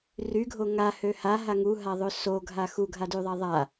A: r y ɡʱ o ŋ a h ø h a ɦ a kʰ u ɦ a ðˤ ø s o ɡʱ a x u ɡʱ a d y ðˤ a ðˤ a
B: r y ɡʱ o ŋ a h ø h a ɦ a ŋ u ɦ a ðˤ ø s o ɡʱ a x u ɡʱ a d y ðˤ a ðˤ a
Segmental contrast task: B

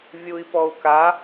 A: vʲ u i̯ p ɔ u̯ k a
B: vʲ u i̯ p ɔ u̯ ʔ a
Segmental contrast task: A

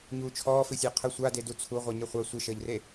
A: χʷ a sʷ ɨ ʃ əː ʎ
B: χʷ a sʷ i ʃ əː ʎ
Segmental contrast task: A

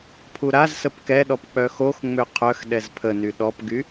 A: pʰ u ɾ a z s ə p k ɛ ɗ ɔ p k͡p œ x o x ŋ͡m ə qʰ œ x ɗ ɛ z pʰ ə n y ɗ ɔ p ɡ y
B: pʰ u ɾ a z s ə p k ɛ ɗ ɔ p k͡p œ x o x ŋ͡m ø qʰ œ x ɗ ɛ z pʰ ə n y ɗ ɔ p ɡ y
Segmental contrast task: B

